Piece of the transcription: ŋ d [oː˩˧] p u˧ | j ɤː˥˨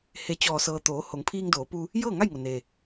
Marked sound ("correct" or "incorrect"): correct